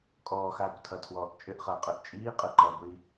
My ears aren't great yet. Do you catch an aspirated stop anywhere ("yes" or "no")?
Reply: yes